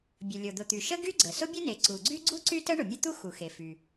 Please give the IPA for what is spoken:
bʲə˩lʲo˩d̪ʊ˩t̪y˩ ʃə˥ ɡy˥ɡ͡ǀə˩ sʊ˥bʲʊ˥ne˩ ǀu˩ɡ͡ǀy˥ ɡ͡ǀu˥ ǀy˥tə˥ ɳʊ˩mʲə˥t̪u˥ xu˩ xe˩fy˩

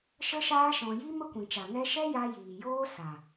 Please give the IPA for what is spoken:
ʃə˦ʃaː˦ ʃɔ̃˧ ji˦ mə˦kʷĩ˨t͡ʃa˨ ŋɛ˧ ʃɛ˦ja˧ jiː˨joː˦ sa˨

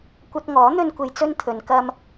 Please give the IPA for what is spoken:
kʷɐ˧t̚ŋɔː˨˥ n̪ɵ˥nkʷe˧jt͡sɵ˥nt̪ʰɵ˨˧n kɐ˧m

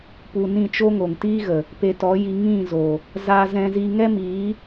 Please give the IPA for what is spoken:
pu˨ nĩ˦˨t͡ʃo˦ŋo˨ŋ tiː˦ɣə˨ | pe˧tɔ˨˦ji˧ ŋĩ˦˨zo˨ | za˧zɛ̃˧zi˧ ŋɛ˦miː˨˦

